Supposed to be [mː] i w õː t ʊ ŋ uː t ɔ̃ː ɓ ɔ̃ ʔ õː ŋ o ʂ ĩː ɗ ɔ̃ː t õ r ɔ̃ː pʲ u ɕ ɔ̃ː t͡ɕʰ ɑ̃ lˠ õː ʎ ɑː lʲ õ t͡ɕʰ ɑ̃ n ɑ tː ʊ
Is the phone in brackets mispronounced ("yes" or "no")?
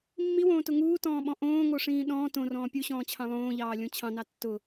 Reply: no